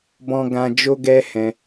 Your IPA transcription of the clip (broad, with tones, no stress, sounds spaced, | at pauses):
b ɔ̃˧ ɡ ã˧ d͡ʒ o˧ ɡ ɛ˧ h ɛ̃˧